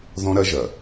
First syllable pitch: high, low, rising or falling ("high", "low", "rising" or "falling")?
high